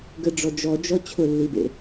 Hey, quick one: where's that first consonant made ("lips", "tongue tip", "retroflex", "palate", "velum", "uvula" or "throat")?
velum